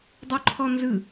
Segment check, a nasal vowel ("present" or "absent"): absent